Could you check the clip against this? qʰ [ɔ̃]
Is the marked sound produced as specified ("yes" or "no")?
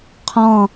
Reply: yes